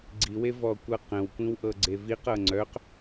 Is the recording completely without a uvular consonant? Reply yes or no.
no